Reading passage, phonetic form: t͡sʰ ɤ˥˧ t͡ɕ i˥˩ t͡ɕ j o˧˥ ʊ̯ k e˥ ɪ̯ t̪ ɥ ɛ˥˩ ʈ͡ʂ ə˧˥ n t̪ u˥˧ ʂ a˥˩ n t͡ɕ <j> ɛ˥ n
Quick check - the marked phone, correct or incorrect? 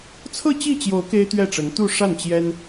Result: correct